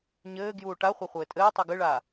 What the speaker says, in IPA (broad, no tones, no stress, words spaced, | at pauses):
ɲɘːɡjuː ʈaχʷɐ χʷɘːtʼɘːtˤi ɡɨɭaː